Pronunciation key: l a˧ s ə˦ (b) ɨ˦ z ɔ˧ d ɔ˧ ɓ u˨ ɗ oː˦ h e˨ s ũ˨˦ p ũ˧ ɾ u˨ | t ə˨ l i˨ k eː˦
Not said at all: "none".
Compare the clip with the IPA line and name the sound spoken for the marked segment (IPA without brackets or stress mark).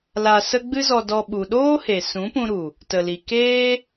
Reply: ɡ͡b